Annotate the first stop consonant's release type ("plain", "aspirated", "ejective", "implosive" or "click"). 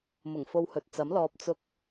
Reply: plain